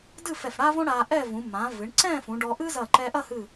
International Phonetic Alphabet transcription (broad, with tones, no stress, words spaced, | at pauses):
dɨ˥˧fɛ˧˩fɽa˥võ˥ ɽa˧ʔɛ˥˧vũ˩˧ mã˩˧ vɨ˩˧ɳǀɛ̃˥˧ fũ˩˧ɖɔ˧ ʔɨ˥zɐ˧˩ǃɛ˧ ʔɐ˥˧hɨ˧˩